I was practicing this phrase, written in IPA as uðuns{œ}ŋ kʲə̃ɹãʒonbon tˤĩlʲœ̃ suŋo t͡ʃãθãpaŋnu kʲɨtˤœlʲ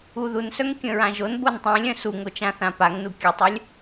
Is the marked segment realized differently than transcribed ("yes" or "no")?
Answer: no